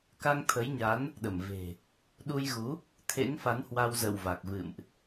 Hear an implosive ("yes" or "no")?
yes